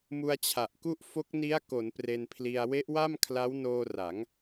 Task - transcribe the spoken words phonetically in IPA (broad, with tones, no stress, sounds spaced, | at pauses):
m u˧ a̯ t͡ɕʰ a˨˩ ʔ k u˥˩ ʔ f o˦˥ k̚ n i˦˥ a̯ k o˩˦ n p r e˧ n pʰ l i˧ a̯ w e˦˥ ʔ w a˥˩ m kʰ l a˦˥ w n oː˧ r a˩˦ ŋ